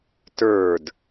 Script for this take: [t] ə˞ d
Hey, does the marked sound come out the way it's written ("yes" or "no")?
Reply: yes